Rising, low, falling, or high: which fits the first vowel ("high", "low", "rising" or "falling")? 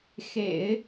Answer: low